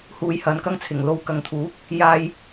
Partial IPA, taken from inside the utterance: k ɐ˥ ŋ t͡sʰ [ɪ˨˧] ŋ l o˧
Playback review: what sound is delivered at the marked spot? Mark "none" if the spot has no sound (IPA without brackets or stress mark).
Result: ɪ˨˩